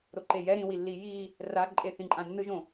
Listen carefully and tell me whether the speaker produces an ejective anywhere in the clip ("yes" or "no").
yes